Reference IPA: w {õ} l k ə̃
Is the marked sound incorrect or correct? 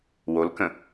incorrect